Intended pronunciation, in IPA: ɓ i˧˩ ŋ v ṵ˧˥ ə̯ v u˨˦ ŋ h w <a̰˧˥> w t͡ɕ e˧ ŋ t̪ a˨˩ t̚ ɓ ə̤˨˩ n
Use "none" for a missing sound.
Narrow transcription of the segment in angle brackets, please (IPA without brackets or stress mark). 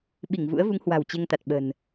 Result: a̤˨˩